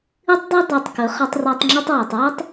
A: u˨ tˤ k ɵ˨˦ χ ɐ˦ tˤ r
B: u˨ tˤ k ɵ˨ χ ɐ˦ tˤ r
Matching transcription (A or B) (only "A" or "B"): A